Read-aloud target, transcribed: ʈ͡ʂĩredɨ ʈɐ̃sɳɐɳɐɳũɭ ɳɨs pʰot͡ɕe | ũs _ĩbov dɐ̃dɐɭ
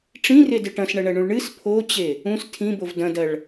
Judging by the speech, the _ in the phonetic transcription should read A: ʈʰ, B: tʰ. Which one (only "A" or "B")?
B